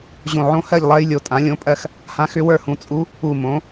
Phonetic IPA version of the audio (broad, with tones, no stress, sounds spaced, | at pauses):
ʑ õ˧˩ ʕ õ˧˥ h ɜ˥˨ ʎ lˠ ɜ˧˥ j lʲ o˧˩ tʼ ã˩˥ lʲ õ˧˥ pʼ ɜ˥˨ x | h ã˧˥ x ʏ˧˥ w ə˞˥˨ h ũ˩˥ t͡sʼ u˧˥ | u˧˩ m õ˩˥